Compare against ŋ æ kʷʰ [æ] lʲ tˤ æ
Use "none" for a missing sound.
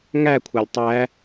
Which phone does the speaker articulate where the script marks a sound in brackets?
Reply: ɛ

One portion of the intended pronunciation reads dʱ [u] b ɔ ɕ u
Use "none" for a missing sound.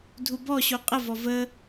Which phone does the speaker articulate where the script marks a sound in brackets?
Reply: u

